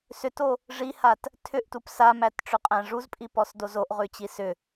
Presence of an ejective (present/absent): present